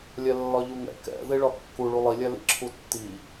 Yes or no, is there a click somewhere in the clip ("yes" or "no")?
yes